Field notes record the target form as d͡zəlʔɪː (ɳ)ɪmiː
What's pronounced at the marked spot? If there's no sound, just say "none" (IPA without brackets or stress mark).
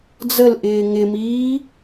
ŋ